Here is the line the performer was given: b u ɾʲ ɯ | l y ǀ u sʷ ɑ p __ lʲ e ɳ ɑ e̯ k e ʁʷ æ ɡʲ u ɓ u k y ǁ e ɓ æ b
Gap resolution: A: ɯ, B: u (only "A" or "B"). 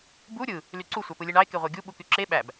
A